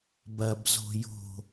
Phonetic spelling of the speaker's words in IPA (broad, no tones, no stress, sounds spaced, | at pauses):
b ɐ b z o̤ j o̤